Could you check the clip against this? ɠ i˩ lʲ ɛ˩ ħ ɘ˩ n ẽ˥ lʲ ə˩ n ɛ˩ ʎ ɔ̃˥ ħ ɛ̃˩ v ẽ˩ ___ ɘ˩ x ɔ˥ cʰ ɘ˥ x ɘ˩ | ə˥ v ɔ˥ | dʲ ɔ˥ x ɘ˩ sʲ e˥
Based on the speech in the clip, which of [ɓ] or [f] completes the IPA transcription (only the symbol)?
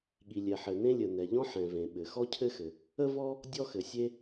ɓ